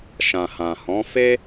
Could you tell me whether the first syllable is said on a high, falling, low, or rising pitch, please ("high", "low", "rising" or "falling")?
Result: low